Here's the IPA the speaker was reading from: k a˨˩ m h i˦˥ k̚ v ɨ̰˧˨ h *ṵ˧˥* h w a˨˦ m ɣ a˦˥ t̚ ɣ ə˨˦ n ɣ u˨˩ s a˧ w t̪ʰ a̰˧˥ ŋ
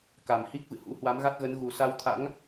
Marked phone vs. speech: correct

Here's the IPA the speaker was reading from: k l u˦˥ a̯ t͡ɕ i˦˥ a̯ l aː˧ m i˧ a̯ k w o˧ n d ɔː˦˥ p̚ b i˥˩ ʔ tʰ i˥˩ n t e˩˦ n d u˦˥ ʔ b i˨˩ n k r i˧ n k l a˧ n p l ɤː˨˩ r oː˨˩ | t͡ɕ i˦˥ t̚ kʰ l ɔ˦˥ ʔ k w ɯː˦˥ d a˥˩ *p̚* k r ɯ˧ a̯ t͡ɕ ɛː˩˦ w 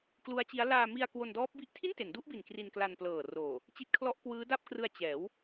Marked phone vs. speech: correct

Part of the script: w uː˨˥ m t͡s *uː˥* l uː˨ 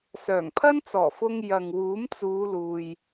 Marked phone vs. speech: incorrect: uː˨˧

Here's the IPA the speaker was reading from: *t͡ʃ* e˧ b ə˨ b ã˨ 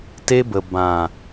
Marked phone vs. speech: incorrect: t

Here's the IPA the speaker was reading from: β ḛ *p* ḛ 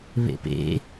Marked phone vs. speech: correct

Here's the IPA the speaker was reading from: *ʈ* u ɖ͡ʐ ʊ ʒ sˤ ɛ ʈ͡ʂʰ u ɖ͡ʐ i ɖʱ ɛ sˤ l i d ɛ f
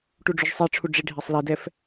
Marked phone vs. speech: correct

